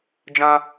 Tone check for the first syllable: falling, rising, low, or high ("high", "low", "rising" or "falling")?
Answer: high